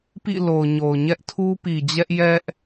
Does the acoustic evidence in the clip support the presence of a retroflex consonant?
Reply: no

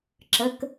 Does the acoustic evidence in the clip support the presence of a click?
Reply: yes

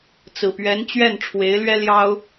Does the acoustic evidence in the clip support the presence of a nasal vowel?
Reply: no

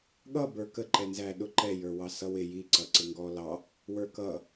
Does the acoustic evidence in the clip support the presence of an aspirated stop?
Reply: no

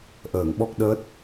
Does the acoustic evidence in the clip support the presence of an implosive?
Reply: yes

